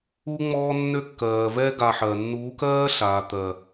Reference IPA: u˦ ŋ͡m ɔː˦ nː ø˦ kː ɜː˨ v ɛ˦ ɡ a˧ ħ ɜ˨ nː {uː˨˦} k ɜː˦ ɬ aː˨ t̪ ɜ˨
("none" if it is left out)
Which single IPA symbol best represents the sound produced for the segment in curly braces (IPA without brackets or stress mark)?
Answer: uː˨˦